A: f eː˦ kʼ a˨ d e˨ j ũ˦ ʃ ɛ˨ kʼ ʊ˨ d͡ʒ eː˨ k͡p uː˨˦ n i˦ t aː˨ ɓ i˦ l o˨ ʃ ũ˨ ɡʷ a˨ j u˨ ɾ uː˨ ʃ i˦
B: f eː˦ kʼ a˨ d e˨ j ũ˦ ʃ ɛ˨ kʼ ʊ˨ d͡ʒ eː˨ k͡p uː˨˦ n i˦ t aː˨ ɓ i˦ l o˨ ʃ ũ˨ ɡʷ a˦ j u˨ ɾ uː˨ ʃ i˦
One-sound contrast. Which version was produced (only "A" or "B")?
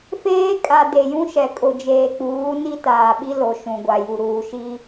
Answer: A